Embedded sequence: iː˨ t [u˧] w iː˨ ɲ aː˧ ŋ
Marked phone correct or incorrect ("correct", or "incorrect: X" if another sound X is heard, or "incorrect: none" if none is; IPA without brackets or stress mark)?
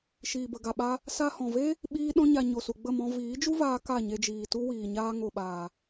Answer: incorrect: u˦